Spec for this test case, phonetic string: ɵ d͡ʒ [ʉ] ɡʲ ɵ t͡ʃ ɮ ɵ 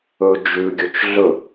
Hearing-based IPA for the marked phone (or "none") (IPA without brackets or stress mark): ʉ